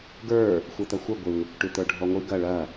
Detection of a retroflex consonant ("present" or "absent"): present